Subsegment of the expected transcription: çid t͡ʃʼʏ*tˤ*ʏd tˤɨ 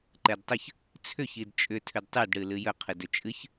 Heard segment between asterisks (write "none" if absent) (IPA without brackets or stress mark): tʰ